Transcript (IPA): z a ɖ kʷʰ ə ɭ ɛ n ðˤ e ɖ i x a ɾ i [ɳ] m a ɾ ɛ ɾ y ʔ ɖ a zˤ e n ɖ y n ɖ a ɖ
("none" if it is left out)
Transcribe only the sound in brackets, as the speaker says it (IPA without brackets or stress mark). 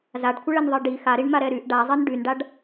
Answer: ɳ